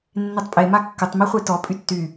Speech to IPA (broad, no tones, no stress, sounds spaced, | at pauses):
nː e tˤ pʼ e m a kː ə tˤ m i χʷ e t ɔ pʼ y tː y